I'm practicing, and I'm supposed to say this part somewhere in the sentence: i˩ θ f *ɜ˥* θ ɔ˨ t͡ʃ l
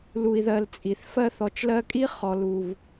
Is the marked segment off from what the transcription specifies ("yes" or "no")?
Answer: yes